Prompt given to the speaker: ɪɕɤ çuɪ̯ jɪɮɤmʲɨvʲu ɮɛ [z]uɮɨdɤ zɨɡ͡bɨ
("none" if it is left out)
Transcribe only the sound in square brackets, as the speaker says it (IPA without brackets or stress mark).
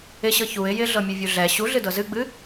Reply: ɕ